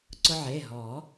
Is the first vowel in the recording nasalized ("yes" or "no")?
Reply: no